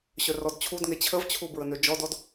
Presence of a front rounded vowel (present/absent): present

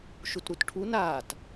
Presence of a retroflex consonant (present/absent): present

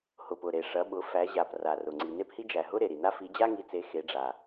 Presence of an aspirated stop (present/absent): absent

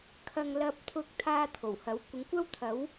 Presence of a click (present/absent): absent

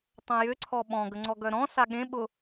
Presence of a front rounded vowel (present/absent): present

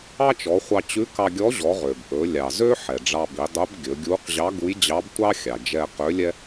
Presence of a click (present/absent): absent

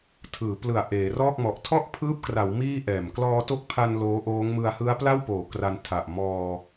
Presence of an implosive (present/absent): absent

